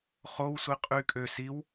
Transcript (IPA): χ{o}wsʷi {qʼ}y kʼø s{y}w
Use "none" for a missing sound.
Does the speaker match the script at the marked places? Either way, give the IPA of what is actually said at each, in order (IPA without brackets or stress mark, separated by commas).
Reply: o, qʼ, i